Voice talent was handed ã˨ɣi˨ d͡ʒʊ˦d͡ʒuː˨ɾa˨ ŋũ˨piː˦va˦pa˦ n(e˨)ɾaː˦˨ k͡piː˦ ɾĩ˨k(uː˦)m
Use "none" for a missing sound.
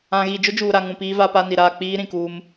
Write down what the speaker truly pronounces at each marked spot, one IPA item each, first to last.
i˨, uː˦

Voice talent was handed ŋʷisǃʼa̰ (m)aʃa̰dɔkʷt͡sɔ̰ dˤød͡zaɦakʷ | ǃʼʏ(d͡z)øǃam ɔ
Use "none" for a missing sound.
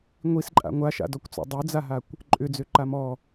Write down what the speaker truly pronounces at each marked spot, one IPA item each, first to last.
ŋʷ, d͡z

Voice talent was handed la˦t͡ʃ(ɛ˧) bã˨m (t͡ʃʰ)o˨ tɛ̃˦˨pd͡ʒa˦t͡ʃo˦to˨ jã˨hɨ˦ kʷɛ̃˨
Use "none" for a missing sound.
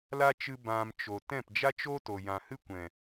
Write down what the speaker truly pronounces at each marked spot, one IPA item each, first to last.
ɨ˧, t͡ʃ

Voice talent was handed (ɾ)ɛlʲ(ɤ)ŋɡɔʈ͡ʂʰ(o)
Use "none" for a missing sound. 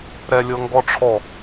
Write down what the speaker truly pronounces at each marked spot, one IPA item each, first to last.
ɾ, ɤ, ɔ

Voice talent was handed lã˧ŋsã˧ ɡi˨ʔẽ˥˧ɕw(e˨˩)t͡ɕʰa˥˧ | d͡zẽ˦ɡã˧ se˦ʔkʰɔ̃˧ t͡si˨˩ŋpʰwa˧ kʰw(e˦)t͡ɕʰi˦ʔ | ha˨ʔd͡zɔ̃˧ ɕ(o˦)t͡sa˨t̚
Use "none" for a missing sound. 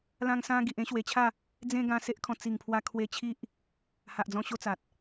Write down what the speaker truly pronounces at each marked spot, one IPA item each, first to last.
e˨˩, e˧, o˦

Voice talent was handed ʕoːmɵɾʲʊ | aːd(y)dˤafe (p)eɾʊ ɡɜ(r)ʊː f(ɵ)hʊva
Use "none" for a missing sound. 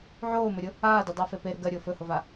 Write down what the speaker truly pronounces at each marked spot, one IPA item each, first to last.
y, p, ɾʲ, ɵ

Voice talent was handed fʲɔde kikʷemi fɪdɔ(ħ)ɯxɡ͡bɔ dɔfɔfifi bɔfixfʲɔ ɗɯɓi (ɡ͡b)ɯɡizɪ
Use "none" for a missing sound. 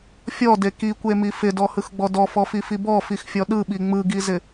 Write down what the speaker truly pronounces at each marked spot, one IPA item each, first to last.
h, ŋ͡m

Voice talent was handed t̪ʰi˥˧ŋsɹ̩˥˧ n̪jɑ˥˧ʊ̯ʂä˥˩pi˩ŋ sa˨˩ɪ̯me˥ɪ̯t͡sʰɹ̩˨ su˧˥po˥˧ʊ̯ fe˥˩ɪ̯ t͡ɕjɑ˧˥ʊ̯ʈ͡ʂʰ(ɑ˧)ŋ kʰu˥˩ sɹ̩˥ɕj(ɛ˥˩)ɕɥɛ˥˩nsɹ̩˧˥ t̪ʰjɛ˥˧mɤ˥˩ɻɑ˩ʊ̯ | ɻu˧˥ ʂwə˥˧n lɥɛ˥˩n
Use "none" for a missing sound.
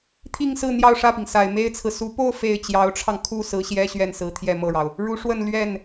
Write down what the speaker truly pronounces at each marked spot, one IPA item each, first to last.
ɑ˧, ɛ˥

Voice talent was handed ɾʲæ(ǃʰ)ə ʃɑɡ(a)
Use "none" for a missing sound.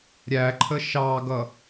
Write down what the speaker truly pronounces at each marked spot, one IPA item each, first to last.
ǃʰ, ʌ

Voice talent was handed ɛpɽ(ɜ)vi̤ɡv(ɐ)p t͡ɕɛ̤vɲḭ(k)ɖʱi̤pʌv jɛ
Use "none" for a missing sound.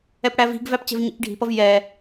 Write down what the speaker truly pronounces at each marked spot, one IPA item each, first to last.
æ, æ, k

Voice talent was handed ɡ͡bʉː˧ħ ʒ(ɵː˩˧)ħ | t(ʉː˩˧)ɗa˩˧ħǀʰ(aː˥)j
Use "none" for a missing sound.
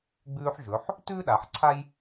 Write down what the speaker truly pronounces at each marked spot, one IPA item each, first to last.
ɵ˩˧, ʉː˥, a˥

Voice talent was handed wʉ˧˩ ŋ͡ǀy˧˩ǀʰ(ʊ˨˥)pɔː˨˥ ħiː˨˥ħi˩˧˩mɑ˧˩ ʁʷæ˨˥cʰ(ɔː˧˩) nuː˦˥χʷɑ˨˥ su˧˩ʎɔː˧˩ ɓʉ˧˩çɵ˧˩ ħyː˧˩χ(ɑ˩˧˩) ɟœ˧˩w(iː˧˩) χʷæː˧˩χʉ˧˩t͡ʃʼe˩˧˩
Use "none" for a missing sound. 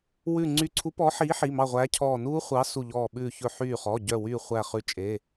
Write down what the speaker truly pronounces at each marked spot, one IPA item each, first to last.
u˨˥, ɔː˧˩, ɔ˩˧˩, yː˧˩

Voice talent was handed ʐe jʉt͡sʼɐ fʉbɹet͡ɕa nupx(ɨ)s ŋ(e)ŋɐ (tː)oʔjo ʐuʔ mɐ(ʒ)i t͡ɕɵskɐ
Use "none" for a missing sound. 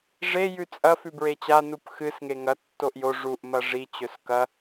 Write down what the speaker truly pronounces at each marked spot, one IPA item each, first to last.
ɨ, e, tː, ʐ

